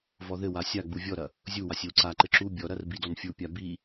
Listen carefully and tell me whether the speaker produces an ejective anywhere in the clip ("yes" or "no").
no